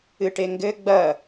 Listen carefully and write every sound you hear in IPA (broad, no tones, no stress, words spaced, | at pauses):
ɨʈeŋɡɘ ɡ͡bɐ